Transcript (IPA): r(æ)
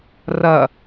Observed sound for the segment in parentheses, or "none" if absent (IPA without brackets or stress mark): ɐ